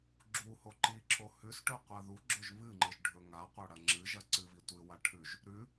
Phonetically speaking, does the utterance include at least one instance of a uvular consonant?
yes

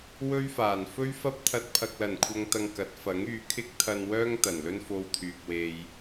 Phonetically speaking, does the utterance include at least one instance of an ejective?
no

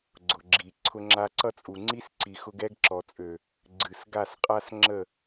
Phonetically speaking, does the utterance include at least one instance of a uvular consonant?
yes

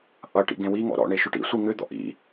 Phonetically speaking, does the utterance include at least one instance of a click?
no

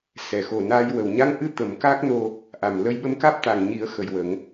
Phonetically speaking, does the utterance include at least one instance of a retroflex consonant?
no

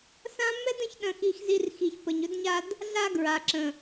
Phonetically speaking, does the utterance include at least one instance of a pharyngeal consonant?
no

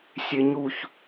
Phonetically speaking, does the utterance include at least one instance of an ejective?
no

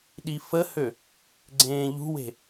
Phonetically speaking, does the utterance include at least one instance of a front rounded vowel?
yes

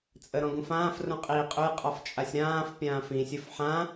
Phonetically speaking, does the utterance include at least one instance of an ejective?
yes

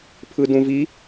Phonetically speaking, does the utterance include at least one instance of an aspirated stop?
yes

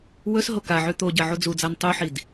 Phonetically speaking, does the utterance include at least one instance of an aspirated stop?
no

